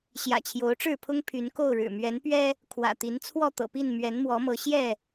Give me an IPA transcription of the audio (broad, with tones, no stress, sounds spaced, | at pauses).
ɕ j ä̰˨˩ t͡ɕʰ j o˨˦ ʊ̯ ʈ͡ʂ ɻ̩˥˨ pʰ ʊ˦ ŋ pʰ y˨˦ n k o˥˨ ʊ̯ ɻ ɻ̩˨˩ m ɥ ɛ˨˦ n p ɥ ɛ˦ | kʰ w ä̰˨˩ t̪ i˨˦ n t͡sʰ w ɔ˥˨ t̪ ɤ̰˨˩ p i˥˨ n m ɥ ɛ˨˦ n m w ɔ˨˦ m ɤ˨˦ ɕ j ɛ˥˨